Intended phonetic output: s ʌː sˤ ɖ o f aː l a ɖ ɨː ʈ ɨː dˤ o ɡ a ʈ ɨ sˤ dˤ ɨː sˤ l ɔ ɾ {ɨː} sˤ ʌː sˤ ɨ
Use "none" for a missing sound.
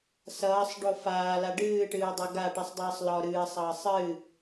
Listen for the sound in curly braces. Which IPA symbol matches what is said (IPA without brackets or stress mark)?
ɨː